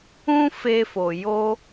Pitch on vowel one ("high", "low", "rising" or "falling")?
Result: high